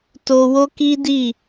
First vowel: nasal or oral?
oral